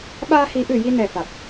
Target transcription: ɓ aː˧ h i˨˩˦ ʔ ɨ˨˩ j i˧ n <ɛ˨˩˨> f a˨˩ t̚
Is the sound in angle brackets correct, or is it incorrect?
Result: incorrect